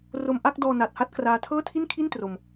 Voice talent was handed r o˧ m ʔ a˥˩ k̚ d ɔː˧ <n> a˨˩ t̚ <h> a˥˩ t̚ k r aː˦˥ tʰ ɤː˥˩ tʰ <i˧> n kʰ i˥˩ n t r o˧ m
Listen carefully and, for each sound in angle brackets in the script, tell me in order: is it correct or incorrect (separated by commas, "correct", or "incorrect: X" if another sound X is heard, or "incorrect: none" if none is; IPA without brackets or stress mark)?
correct, correct, incorrect: i˥˩